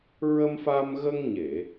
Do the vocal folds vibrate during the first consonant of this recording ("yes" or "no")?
yes